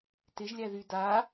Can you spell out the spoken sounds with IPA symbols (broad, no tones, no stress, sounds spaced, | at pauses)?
t ɪ ʒ lʲ æ ð y d a